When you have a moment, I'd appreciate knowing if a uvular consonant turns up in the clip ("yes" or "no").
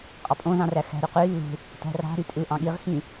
yes